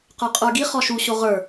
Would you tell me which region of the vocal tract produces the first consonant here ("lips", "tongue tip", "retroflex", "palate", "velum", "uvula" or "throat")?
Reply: uvula